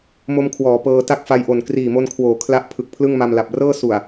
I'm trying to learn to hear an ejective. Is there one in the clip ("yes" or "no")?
no